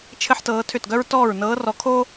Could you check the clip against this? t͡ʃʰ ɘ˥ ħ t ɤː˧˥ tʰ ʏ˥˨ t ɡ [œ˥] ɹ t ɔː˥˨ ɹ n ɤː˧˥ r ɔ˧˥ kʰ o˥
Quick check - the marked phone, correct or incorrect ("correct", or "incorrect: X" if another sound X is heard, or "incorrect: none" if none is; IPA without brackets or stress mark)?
correct